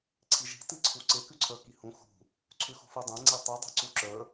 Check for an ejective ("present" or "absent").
absent